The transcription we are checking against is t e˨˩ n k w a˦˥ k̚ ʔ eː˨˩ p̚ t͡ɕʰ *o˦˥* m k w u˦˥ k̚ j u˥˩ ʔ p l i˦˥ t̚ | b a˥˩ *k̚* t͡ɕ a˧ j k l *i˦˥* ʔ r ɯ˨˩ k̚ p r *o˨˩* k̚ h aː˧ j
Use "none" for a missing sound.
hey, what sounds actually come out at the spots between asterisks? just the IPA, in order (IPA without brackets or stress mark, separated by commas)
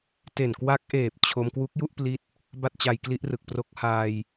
o˧, t̚, i˦˥, o˦˥